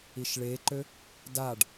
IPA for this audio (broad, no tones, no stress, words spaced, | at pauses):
iʃɭeǃø | daɖ